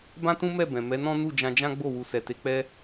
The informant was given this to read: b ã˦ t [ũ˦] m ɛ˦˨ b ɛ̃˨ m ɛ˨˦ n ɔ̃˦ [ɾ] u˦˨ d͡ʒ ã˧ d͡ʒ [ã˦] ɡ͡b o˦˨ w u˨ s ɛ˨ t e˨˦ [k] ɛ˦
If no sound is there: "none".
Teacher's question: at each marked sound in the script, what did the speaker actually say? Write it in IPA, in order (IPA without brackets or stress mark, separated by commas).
ũ˦, n, ã˦, k͡p